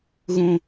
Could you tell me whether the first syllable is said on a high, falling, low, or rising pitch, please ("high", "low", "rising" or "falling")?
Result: high